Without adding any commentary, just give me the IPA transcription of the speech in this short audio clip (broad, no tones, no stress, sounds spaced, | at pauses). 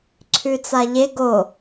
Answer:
ǀʰ ʉ t͡s a ʎ e ɡ o